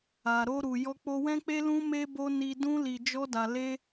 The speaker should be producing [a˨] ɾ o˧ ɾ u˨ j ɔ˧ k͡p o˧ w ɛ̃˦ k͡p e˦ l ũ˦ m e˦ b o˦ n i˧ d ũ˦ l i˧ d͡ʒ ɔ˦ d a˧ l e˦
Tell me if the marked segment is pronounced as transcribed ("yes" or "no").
yes